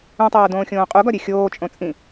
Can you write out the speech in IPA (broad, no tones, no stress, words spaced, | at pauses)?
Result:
ũtˤoː dõːxʲõːqʼuɡɒ ɾʲexʲoːt͡ʃʼõ t͡sʼĩ